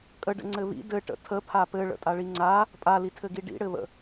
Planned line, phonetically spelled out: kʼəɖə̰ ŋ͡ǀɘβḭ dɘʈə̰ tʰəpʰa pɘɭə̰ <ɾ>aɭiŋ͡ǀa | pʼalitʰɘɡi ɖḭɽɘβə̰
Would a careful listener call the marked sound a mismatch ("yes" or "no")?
yes